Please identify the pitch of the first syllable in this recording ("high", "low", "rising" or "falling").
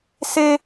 high